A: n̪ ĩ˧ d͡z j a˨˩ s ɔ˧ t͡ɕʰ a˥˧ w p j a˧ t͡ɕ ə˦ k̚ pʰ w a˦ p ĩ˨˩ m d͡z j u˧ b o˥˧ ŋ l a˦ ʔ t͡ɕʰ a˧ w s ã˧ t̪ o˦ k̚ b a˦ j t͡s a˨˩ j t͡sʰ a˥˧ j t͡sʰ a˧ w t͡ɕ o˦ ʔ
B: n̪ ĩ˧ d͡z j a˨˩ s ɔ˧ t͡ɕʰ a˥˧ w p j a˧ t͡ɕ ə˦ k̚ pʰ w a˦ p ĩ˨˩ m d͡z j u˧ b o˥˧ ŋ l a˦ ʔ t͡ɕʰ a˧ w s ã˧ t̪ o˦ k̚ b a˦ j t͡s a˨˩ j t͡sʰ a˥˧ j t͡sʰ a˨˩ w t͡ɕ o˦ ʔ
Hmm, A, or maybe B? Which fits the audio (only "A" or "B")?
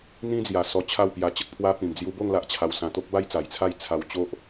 A